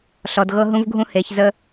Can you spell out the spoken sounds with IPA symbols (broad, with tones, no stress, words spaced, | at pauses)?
ɬɔ˨dɣɤ˦ɦũ˦vɡʱũ˦ he˨˦çzə˦